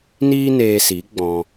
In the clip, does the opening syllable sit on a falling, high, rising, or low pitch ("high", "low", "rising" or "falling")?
high